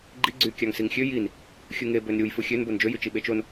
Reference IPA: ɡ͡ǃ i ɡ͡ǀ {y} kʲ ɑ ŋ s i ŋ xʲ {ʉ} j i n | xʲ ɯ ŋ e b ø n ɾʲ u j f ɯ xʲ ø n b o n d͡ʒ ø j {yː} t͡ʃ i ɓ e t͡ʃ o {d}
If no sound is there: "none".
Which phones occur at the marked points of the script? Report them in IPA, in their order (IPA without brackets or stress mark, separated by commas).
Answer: y, ø, y, n